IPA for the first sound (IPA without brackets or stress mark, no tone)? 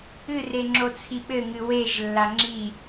ɨ